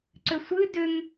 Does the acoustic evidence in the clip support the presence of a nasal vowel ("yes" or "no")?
no